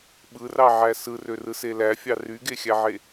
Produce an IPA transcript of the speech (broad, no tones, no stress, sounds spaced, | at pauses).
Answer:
ɓ ɯ r ɑ ʕ æ s ɯ r ø r ɯ s e l æ fʲ ɑ r y ɡ e xʲ æ ʕ e